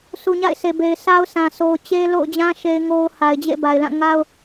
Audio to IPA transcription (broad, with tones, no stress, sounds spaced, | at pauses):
sʰ u˨ ɲ a̰˦˨ ɪ̯ sʰ e˨ b e˨ ɪ̯ sʰ a˦ ʊ̯ sʰ ã˨ sʰ o˨ ʊ̯ t͡ɕ e˦ l o̰˦˨ ʊ̯ d͡ʑ ã˦ ʃ e˦ ɪ̯ ŋ o˦ ʊ̯ h a˨ ɪ̯ d͡ʑ ḛ˦˨ b a˨ ɪ̯ l ã˦˨ ŋ a˦ ʊ̯